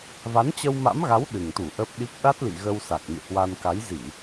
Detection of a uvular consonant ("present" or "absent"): absent